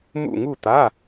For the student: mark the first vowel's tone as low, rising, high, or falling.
falling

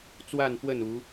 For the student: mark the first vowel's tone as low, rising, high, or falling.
falling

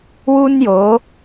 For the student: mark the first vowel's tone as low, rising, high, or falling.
high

